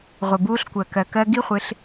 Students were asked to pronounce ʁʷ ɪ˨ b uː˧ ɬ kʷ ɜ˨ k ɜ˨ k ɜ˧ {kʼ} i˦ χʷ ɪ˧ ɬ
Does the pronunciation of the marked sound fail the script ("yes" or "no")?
yes